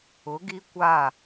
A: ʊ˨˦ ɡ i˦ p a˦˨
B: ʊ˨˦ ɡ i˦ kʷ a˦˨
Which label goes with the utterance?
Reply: B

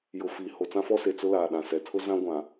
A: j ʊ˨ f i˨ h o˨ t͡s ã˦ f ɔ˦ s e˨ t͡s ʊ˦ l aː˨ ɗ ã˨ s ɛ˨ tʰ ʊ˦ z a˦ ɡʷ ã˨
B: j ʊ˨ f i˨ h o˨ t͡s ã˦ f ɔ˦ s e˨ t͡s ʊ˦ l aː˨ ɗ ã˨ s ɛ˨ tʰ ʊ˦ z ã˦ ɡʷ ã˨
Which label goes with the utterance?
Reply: B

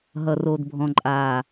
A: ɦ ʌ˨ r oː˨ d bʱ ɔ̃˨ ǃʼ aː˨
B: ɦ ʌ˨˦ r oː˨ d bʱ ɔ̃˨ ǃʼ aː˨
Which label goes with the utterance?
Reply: A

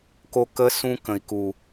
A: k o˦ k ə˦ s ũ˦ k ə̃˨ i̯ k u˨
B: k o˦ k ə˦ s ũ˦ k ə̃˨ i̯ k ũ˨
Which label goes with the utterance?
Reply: A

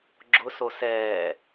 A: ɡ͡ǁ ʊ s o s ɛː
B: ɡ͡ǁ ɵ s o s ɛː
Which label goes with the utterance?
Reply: A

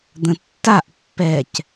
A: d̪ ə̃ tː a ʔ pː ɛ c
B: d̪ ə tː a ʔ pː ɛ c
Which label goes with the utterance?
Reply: A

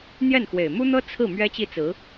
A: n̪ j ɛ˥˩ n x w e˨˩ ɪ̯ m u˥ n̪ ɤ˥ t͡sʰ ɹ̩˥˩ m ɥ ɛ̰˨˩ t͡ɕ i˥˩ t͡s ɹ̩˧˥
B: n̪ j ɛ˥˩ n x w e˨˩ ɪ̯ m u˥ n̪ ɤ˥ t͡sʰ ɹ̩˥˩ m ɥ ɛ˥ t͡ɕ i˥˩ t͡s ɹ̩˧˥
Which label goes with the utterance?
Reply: B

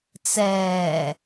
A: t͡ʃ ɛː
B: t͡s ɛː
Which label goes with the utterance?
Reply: B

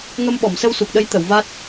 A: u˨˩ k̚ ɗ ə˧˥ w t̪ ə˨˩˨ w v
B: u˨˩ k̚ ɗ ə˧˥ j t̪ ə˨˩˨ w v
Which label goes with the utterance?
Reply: B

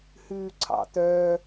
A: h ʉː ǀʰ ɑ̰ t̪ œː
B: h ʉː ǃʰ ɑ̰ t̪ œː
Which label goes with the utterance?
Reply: A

